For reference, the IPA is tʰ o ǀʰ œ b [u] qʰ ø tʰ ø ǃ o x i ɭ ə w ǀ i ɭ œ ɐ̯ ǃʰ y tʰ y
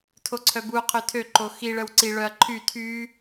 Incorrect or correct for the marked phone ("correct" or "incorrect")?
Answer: correct